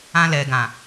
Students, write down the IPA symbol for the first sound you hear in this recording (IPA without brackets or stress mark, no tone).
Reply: ã